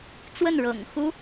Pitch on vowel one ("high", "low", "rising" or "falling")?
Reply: falling